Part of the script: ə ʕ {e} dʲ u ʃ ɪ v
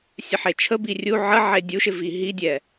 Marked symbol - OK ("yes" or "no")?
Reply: yes